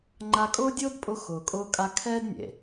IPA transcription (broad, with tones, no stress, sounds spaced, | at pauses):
ŋ͡ǃ a˧ kʼ ʊː˦ dʲ ʊː˦ d pʼ ʊ˧ x ʊː˨ kʼ ʊː˧ kʼ a˧ kʰ ɛː˦ d nʲ ḛ˨